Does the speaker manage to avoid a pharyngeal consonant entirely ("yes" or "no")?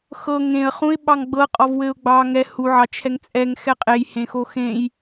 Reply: no